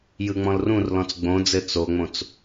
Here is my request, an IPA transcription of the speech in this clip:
j ɯ ŋ͡m ɔ̃ l r ũ r l ɔ̃ t͡s ɡ͡b õ d͡z ɘ t͡s o ŋ͡m õ t͡s

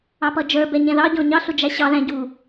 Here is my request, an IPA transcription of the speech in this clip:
ɑ p ʌ d͡ʒ ə˞ b ɛ ɲ ɛ̃ ð ɑ ɟ ɔ̃ ɲ ɑ ɬ ʊ d͡ʒ æ ɕ ɑ ð æ̃ ɟ u

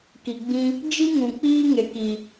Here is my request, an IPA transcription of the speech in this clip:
k i˨ ɡ͡b ĩ˧ | d͡ʒ i˦ ŋ ũ˨ k͡p iː˦ ŋ e˨ k i˨

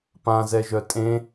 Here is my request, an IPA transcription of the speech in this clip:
p ã z ɛ ʒ œ tʼ ẽ

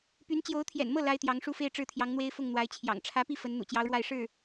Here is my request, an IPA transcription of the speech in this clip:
p y˧˥ n t͡ɕ j o˧˥ ʊ̯ t̪ʰ j ɛ̰˨˩ n m ɤ˥˩ l a˥ ɪ̯ t̪ j ɑ˧˥ ŋ ʂ u˥ f e˥ ɪ̯ ʈ͡ʂ ɻ̩˥˩ t̪ʰ j ɑ˧˥ ŋ n̪ w e˥ ɪ̯ f ʊ˥˩ ŋ n̪ w a˧˥ ɪ̯ t͡ɕʰ j ɑ̰˨˩ ŋ ʈ͡ʂʰ ä˧˥ p i˥˩ f ə˧˥ n n̪ ṵ˨˩ t͡ɕ j ɑ˧˥ ʊ̯ ɻ w a˥˧ ɪ̯ ʂ ɻ̩˥˩

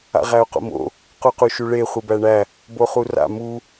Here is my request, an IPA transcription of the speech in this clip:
a̰ ʁ æ o̯ q o̰ m o̰ | q u q u ʃ u ɭ e χʷ i b æ ɳ æ | b o χ u r a̰ m u

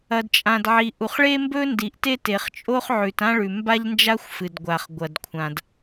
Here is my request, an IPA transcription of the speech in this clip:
ɐ˩ d t͡ʃʼ ã˩ d ʕ i˩ ʔ u˩ χ ɭ e˥ m b ɵ˥ n d i˩ ʔ t e˥ t e˩ χ t͡ʃʼ o˥ χ ʕ ʉ˩ t ã˥ ɭ ʉ˩ m b a˥ ʎ n d͡ʒ a˥ xʷ f ɨ˩ d ɡʷ a˩ χ ɡʷ ɐ˩ d kʷʰ ã˩ d

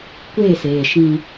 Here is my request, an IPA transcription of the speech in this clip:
kʷ eː˦˨ s eː˨ ʃ ĩ˦

